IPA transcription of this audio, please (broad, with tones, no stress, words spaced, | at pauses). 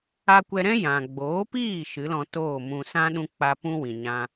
a˧kʷɛ˧ɾɛ̃˦ jã˨ ɡ͡boː˨˦piː˦˨ ʃɨ˨˦lɔ̃˧toː˦˨mũ˧ sã˦ɗũ˧ k͡pa˦ pũ˦wĩ˨ ɲã˦